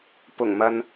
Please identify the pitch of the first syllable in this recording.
low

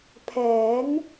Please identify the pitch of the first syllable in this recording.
rising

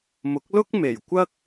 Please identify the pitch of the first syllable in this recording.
rising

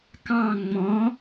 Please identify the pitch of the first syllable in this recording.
falling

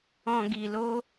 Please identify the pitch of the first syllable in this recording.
low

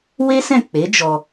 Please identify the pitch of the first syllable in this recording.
high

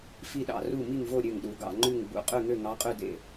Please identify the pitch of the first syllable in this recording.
falling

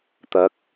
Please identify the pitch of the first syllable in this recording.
rising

